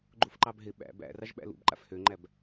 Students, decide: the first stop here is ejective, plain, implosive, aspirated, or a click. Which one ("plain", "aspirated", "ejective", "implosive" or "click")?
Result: click